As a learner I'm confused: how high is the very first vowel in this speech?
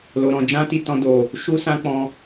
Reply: mid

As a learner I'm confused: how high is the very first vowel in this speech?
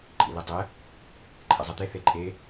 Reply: high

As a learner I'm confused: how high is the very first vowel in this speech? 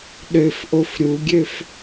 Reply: mid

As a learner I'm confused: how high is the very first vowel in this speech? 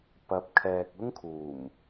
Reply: low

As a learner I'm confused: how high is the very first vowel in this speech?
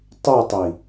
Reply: high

